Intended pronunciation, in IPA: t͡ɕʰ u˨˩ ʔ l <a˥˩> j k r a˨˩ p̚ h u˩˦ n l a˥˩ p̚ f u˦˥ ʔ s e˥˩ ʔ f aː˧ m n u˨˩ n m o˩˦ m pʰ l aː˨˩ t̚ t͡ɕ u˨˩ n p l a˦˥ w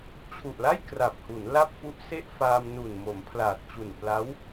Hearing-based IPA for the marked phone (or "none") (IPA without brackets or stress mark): a˥˩